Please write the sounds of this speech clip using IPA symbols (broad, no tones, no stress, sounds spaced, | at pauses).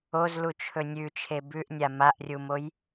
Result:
o z l u t͡ʃʰ ɵ nʲ ʉ t͡ʃʰ e b ʉ ʔ nʲ a m a ʔ rʲ u m o j